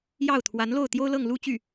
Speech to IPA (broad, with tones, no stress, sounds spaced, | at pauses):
j ɑ˥˩ ʊ̯ t̪ʰ w a˧˥ n l o˥˩ ʊ̯ t̪ j o˥ ʊ̯ l ɤ˥˧ ŋ l u˥˧ t͡ɕ y˥˩